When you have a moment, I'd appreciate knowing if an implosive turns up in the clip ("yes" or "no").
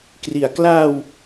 no